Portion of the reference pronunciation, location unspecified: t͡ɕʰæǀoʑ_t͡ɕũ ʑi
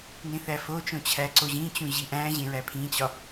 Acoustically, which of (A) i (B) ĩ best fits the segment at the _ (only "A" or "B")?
B